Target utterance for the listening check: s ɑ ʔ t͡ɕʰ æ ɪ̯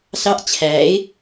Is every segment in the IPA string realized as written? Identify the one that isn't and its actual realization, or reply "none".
none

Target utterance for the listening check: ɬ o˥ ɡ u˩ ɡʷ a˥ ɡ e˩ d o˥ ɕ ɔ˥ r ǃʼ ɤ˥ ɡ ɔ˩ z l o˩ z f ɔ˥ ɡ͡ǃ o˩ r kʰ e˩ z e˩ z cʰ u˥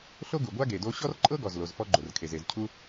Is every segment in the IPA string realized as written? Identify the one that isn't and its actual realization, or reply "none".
none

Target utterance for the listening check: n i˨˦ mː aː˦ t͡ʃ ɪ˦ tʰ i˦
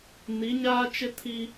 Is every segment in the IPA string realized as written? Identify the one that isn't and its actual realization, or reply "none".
mː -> ɲ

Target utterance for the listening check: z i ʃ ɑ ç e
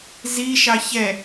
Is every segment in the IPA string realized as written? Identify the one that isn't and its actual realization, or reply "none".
e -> ɛ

